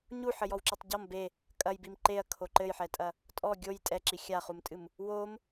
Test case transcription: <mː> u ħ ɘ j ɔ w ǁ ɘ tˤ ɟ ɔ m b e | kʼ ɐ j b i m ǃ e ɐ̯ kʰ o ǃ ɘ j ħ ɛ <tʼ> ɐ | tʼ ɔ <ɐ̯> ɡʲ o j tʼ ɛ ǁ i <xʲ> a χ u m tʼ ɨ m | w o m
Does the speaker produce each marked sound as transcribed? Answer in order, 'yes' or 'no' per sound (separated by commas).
no, yes, no, yes